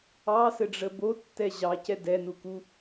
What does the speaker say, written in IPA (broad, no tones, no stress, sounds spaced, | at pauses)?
ɑ s ɘ ɖ͡ʐ ə b o tː ɛ ʑ ɑ c ɛ d ɛ n u k u